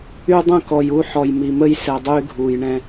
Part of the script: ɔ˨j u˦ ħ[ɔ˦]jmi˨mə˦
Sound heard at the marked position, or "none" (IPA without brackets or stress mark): ɔ˨